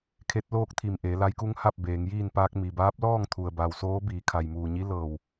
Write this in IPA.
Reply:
kʰ e˧˥ t̚ l oː˥˨ k̚ t̪ʰ i˧˩ m ʔ eː˩˧ l a˧˥ j k u˧˥ ŋ h a˥˨ p̚ b eː˩˧ ŋ j iː˥˨ n p aː˧ k̚ m i˩ b aː˧˥ p̚ l ɔː˥˨ ŋ t̪ʰ u˩ ə̯ b a˩ w s oː˧˥ b iː˩˧ kʰ a˩ j m uː˩ ɲ i˧˥ l ɤː˧˩ w

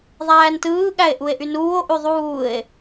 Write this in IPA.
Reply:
ðˤ æː n t ɯː ɠ æ e̯ ʔ u e̯ ʔ y n uː o̯ ʔ y ðˤ uː e̯

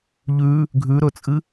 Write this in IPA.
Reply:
ʎ ʉ | ɡʱ ʉ ɾ ɵ t͡sʼ ɨ

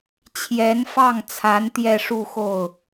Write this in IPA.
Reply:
t͡ɕʰ j ɛ˧˥ n f ɑ˥˩ ŋ t͡sʰ a˧˥ n t̪ j ɛ˥˧ ʂ u˥˧ x o˥˩ ʊ̯

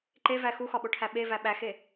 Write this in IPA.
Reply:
ǃ e v æ x u x ɒ ɓ o ʈʰ æ ɓ e v æ ɓ æ x e

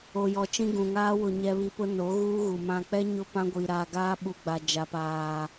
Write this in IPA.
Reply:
o˨ j ɔ˨ t͡ʃ ĩ˦ ɡ ũ˨ ŋ aː˦ w ʊ˨ ɲ ɛ˨ β i˨ p ʊ˦ n o˨˦ ɣ uː˦ ɣ u˨ m ã˨ k͡p ɛ˦ ɲ ʊ˦ p ã˦ ɡʷ i˨ ɾ aː˨ ɡ aː˦ ɓ u˨ ɡ͡b a˨ d͡ʒ a˨ p aː˨

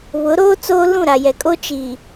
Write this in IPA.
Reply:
β ʊ˨˦ ɾ oː˦ t͡s oː˦ l ũ˦˨ ɾ a˨ j ɛ˨ kʼ o˦ t͡ʃ iː˨

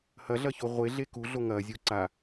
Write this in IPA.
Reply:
h ɐ ɮ ɐ ç o ʁʷ e ɮ e k u ɮ o ŋ ɐ zʲ u ǀ a

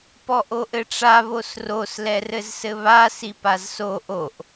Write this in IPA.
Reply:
p ɔ ʔ o ʔ ɘ ʈ͡ʂ a β o s r o s l ɛ r ɘ z s ɘ β a s i p a z s o ʔ o ʔ

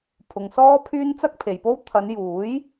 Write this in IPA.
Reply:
pʰ ʊ˨ ŋ s ɔː˥ pʰ yː˥ n t͡s ɐ˥ k̚ pʰ e˨ j p o˥ w t̪ʰ ɐ˨˧ n j uː˨˥ j

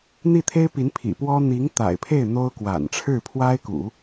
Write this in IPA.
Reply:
n̪ i˥˩ t̪ʰ e˥ ɪ̯ p i˧˥ n pʰ ḭ˨˩ p w ɔ˥ n̪ i˧˥ ŋ t̪ a̰˨˩ ɪ̯ pʰ e˥˩ ɪ̯ n̪ o˥ ʊ̯ k w a̰˨˩ n ʈ͡ʂʰ ɻ̩˥˩ pʰ w a˥ ɪ̯ k ṵ˨˩˦

